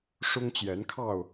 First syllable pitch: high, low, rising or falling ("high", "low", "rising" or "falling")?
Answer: high